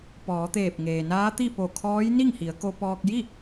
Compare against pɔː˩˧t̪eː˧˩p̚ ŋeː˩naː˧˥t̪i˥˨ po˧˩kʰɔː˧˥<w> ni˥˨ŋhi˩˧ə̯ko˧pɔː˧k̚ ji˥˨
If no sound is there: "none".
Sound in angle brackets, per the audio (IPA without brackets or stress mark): j